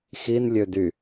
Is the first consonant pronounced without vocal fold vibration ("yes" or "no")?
yes